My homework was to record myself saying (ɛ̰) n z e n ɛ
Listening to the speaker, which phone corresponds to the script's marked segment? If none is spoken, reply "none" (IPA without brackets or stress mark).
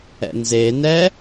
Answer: ɛ̰